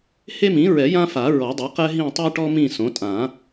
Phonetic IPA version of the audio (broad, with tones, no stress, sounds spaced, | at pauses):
h e˦ m ĩ˩˥ ɹ ɛ˨˩˦ j ã˦ f a˨˩˦ ɹ ɔ˨˩˦ dˤ e˩˥ q ɛ˦ ɦ ĩ˦˨ tˤ ɛ˦ ʈ ɔ˦ m ĩ˦˨ s õ˩˥ tʼ ã˨˩˦